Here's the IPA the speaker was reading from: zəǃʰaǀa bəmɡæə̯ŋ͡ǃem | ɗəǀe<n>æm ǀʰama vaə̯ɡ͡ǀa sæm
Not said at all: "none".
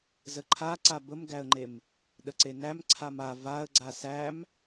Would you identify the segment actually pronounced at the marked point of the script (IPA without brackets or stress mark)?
n